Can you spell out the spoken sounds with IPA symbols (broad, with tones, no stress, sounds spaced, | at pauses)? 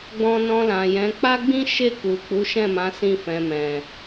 ɡ͡b ɔ̃˧ n ɔ̃˧ l ã˨ j ɛ̃˨˦ k͡p a˦ ɡ͡b ĩ˦ ʃ e˦˨ k u˨ k͡p u˨˦ ʃ ɛ̃˦˨ m ã˨˦ s ĩ˧ f ɛ̃˨ m ɛ̃˨